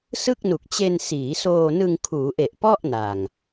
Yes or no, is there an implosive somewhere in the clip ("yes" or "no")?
no